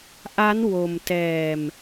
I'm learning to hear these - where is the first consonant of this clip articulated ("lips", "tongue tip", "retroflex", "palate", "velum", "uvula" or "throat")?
throat